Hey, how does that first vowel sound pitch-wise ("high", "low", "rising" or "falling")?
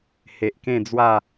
low